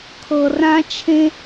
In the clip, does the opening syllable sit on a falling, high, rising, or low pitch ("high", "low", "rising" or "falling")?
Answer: low